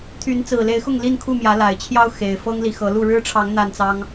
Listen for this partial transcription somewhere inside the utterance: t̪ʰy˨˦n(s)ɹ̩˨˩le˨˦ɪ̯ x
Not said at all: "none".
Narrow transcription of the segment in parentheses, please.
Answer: t͡s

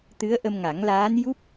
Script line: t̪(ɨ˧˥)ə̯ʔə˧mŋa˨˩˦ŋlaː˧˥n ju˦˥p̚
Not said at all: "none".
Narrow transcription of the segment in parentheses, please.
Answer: ɨ˧˥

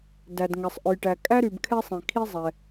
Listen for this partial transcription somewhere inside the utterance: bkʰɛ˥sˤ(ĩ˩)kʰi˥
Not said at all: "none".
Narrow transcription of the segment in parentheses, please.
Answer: ĩ˩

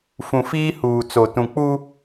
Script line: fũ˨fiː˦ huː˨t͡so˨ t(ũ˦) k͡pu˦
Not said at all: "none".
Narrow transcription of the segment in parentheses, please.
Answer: ũ˨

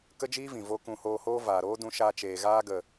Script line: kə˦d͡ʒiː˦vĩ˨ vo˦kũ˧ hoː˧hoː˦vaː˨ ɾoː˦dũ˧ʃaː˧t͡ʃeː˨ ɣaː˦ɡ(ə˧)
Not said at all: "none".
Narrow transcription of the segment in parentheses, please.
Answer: ə˨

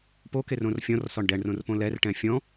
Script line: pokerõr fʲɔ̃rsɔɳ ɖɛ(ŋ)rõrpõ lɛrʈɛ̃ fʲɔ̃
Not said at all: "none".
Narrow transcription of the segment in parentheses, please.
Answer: ɳ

